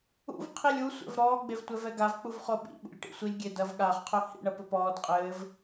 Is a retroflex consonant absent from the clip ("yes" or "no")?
no